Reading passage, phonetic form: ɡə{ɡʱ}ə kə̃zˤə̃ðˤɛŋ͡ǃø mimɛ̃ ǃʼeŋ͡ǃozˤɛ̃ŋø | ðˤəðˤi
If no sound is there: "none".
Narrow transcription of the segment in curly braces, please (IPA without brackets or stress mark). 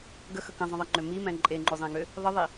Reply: x